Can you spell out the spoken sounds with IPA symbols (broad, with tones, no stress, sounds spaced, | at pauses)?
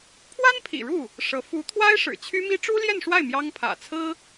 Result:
pʰ w a˥ n pʰ ḭ˨˩ ɻ u˥˩ | ʂ ɤ˧˥ f u˧˥ t̪ʰ w a˥ ɪ̯ ʂ ɻ̩˨˩ t͡ɕʰ y˥ m i˥ ʈ͡ʂ u˥ l j ɛ˥˧ n ʂ w a˥˩ ɪ̯ m j ɑ˥ ŋ pʰ ä̰˨˩ t͡sʰ ɹ̩˥